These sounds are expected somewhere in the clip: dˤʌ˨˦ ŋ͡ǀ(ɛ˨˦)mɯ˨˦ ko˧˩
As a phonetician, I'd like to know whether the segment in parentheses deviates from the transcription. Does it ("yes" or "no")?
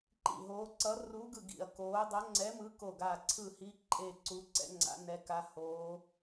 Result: no